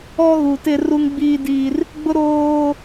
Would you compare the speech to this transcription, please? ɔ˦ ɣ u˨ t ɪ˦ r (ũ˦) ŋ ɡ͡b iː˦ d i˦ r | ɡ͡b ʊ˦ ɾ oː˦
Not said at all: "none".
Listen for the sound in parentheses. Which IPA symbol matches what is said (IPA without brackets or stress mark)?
u˦